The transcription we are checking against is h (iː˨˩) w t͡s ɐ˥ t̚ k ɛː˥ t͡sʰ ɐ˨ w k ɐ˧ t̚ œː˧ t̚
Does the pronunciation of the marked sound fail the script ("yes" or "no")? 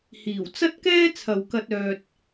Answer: no